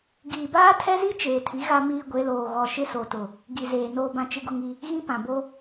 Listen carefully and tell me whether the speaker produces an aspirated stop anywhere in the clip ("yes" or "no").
yes